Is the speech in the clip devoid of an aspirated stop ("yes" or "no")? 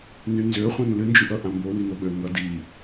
yes